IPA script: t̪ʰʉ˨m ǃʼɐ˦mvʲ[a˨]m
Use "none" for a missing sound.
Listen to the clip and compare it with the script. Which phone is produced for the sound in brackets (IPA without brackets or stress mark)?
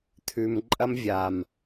a˨